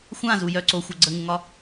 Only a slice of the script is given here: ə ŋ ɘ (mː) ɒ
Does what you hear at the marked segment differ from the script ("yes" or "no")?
yes